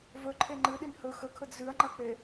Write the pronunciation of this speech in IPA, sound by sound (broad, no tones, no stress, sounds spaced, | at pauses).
v ɵ ǃʰ e ŋ͡ǃ ɨ ɗ i n h ɵ x ɵ kʰ ɵ d z ʉ ɐ̯ ŋ͡ǃ ɐ k͡p e